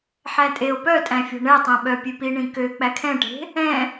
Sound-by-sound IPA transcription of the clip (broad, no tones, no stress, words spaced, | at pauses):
ħætʼeo̯ pœtʼæ̃ fʲɔ̤ɳɛtˤẽ ɓœpʲʉpi ɳĩkø k͡pækʰɛ̃ʈe̤ | ɛ̃